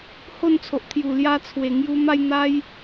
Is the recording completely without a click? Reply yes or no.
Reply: yes